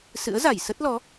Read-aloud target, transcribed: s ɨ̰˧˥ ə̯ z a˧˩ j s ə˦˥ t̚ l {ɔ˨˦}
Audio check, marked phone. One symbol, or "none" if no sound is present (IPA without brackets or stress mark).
ɔ˨˦